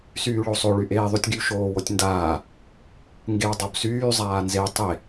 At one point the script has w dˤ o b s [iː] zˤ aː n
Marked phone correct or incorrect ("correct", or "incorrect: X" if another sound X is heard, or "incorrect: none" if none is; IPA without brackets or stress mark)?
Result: incorrect: yː